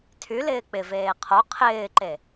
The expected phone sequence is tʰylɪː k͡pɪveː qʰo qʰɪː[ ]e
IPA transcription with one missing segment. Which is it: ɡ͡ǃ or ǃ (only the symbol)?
ǃ